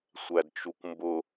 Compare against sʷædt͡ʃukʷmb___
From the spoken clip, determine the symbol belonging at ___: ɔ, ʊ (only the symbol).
ʊ